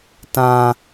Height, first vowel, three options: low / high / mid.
low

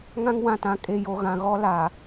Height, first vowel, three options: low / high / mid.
low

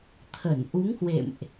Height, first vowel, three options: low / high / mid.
mid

